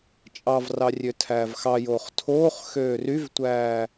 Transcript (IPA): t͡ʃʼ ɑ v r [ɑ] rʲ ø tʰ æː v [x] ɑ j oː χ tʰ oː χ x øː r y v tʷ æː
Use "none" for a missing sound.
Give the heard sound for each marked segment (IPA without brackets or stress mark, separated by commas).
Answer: ɑ, x